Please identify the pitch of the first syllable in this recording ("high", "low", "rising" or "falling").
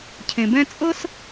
low